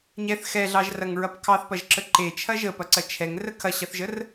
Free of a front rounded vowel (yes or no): yes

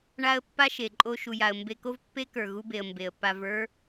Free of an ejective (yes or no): no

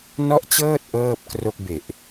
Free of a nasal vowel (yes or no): yes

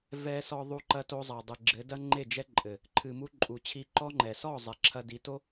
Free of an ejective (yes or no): no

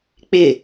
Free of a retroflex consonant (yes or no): yes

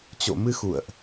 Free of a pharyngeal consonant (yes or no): yes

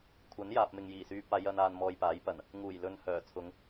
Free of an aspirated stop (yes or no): no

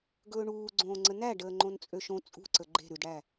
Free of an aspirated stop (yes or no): yes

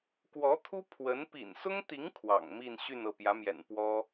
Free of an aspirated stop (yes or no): no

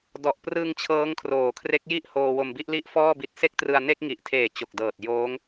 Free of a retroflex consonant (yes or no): yes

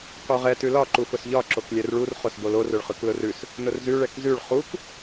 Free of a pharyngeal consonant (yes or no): yes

